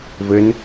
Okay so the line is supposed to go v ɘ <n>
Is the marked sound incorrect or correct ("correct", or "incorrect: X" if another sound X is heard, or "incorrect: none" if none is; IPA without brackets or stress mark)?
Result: correct